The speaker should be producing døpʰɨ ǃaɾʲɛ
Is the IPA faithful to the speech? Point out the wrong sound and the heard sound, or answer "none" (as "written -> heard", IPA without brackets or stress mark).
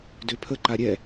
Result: ɨ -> ə